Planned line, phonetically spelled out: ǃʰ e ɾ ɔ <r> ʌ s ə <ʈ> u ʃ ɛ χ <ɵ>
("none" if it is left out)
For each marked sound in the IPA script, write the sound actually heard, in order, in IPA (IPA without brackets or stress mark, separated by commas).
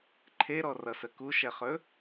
r, k, ɵ